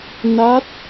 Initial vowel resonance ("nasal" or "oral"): oral